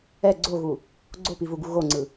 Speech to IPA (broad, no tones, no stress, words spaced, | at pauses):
ɛ ɡ͡ǀoɣu | ɡ͡ǀopivuɡu ɣoŋ͡ǀɯ